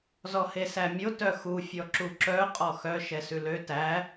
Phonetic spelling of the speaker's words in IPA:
z ɔ h e s æ mʲ o t œ x u fʲ ɔ ǁ u ǁ œ qʼ ɔ x œ ʃ ɛ s ʉ l ø t æ

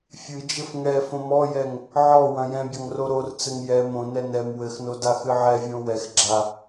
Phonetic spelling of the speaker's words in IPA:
fʲ ɨ d͡ʒ ɘ f ŋ ɛ f õ m ɔ j ɛ ŋ | ʕ ɔ w ɐ̃ j ɛ̃ bʲ ɐ ŋ r o ɾ o r t͡s ɘ ŋ j ɛ m õ n ɛ n ɛ m w ɘ x n o d a x ɨ ʕ ɛ vʲ õ w ɛ x ɡ͡ǁ a

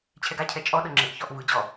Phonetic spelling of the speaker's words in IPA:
t͡ɕʰ ɛ ɡ a cʰ ɛ t͡ʃʼ ɔ ɗ ɤ ŋ͡ǁ e ʔ ç ɔ ʔ v ɯ d͡ʑ ɔ

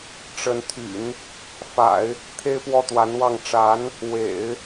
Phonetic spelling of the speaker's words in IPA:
ʈ͡ʂ ə˧˥ n t̪ʰ y̰˨˩˦ n | f a̰˨˩˦ ɪ̯ | t̪ʰ e˥ ɪ̯ p w ɔ˥˩ t̪ w a˧˥ n w ɑ˥˩ ŋ ʈ͡ʂ a˧˥ n | w ḛ˨˩˦ ɪ̯

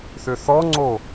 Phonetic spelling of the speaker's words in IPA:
θ ʏ θ ɔ ŋ͡ǀ o

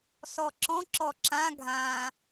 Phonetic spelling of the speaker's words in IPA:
s ɔ ǁ ɔ̃ ǁ ɔ ǁ ã ɡʱ ã

